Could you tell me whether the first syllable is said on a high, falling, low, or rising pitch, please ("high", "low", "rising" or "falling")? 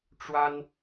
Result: high